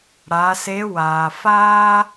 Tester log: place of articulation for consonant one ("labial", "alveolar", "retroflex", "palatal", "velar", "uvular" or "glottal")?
retroflex